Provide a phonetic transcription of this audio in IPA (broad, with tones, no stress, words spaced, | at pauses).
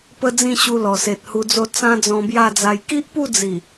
pə˦d͡zĩ˥˧ɕu˧ lɔ˨˩se˨t̚hu˧d͡zo˥˧ t͡sã˦d͡zɔ̃˧bja˥˧d͡za˧j ki˦ʔpu˥˧d͡zi˨˩